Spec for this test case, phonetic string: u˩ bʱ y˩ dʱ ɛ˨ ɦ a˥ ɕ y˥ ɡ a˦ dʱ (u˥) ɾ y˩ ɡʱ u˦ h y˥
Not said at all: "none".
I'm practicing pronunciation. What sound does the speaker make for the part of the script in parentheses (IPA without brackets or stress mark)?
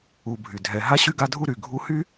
u˥